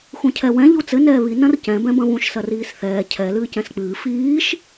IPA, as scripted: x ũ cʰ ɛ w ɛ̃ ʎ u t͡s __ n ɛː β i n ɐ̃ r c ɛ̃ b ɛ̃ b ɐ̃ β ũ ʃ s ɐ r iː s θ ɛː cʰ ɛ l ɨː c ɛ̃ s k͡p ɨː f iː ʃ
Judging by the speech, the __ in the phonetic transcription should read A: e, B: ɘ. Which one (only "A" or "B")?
B